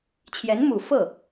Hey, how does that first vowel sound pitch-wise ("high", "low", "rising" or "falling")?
rising